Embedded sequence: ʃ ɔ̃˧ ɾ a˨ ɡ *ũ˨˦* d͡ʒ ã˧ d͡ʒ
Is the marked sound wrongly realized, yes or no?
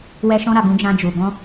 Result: no